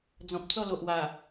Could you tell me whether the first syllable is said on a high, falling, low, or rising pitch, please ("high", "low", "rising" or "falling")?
low